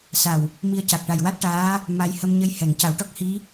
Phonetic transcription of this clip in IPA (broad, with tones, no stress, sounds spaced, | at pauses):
s a˨˩ w | m i˧ ə̯ c a˨˩ k̚ ʈ a˨˩ j w a˦˥ t̚ ʈ aː˧˥ | m a˧ j h ə˧ m ɲ ə˧ j h ɛ˨˩˨ ŋ c a˨˩˦ w ʈ ɔ˦˥ k̚ h i˧˥